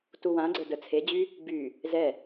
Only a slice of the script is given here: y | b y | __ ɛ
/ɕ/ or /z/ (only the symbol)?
z